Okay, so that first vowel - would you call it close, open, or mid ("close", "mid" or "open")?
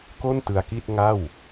mid